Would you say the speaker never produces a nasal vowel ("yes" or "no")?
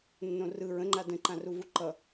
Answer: no